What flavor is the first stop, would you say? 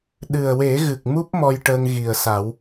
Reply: implosive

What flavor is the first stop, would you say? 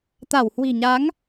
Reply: plain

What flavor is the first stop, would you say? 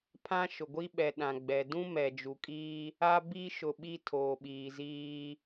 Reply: aspirated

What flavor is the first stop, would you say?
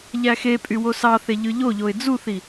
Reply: ejective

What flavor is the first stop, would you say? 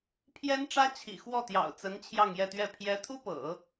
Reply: aspirated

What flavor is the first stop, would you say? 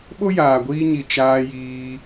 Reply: implosive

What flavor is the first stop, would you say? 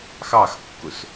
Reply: plain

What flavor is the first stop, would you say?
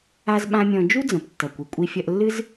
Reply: implosive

